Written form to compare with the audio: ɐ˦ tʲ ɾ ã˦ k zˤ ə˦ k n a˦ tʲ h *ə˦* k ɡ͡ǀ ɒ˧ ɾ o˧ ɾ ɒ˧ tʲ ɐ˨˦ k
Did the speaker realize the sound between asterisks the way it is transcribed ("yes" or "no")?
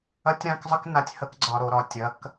yes